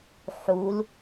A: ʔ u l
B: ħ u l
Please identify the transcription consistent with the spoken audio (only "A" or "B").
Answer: B